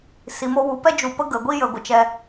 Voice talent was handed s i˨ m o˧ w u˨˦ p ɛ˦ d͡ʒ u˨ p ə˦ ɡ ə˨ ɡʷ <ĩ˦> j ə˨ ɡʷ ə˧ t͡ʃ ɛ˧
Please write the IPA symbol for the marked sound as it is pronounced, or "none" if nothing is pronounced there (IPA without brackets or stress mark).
i˦